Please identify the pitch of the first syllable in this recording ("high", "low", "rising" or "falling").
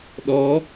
rising